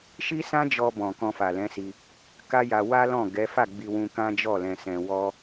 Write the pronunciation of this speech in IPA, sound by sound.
ʃ i˦ s ã˦ d͡ʒ ɔ˧ b ɔ̃˨ k ɔ̃˧ f a˨ l ɛ̃˨˦ s i˧ | k a˦ j a˧ w a˦ l ɔ̃˦˨ ɡ ɛ˨˦ f a˦˨ ɡ͡b i˧ w ũ˧ k ã˦ d͡ʒ ɔ˦˨ l ɛ̃˧ s ɛ̃˧ w ɔ˦

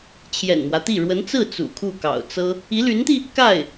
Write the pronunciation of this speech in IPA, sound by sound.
t͡ɕʰ j ɛ̰˨˩ n m w ä˦ t̪ i˥˩ ɻ w ə˧˥ n t͡s ɹ̩˥˩ t͡s ṵ˨˩ kʰ u˥˩ k ɑ̰˨˩ ʊ̯ t͡s ɤ˥ | i˧˥ l y˧˥ n t̪ i˧ | k a˥˩ ɪ̯

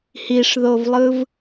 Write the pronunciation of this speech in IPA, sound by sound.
h i ʂ ð o v lˠ ɯ v

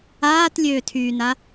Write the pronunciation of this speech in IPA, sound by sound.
aː t lʲ øː tʰ yː n a

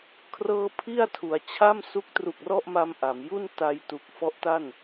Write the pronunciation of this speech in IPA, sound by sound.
kʰ r ɤː˥˩ pʰ i˥˩ a̯ tʰ u˩˦ a̯ t͡ɕʰ a˥˩ m s u˦˥ k̚ t r u˨˩ k̚ r ɔ˥˩ ʔ m a˧ m ʔ a˩˦ m j u˥˩ n t a˧ j t u˨˩ k̚ f ɔ˦˥ ʔ t a˥˩ n

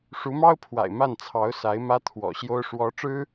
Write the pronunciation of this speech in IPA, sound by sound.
ʂ u˧˥ m ɑ˥ ʊ̯ pʰ w a̰˨˩ ɪ̯ m a˥˩ n t͡sʰ ɑ˧˥ ʊ̯ s a˧˥ ɪ̯ m ä˥ t̪ʰ w ɔ̰˨˩ ɕ j o˥ ʊ̯ ʂ w ɔ˧˥ ʈ͡ʂ ɻ̩˥

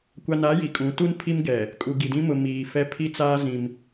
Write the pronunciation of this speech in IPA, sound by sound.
kʷ a˨ n a˨˦ j i˨ kʼ ũ˨˦ t u˦ n pʰ i˦ m ɡ ɛ˨ | kʼ u˨ ɡ i˨ d ĩ˦ m ʊ˨ m iː˨ f ɛ˦ pʰ i˦ t͡s aː˦ z ĩ˦ m

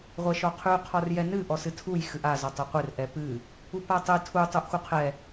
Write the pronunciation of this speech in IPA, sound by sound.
ʁʷ ɛ ʃ ɔ qʰ ʉ qʰ ɔ r j ɛ n ɨ ʔ ɔ s ɨ tʰ u j x ɨ ʔ a z ɔ tˤ ʉ qʷ ɨ r ʔ ɛ p ɨ | u p a tˤ ɨ tʰ u tˤ u ʔ x u qʰ ɛ

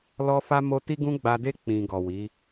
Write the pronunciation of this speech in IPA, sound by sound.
l ɔ˦ f a˦ m o˦ t i˦ ɡ ũ˦ ɡ͡b a˧ d e˦ k͡p ĩ˧ ɡ ɔ˨ w i˨˦

